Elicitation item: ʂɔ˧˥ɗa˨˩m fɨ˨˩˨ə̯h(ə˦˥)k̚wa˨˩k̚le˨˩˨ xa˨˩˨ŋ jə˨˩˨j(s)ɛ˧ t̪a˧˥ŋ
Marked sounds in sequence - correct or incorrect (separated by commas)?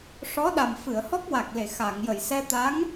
incorrect, correct